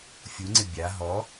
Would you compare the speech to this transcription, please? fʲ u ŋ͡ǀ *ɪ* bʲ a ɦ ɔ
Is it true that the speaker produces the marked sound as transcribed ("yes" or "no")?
yes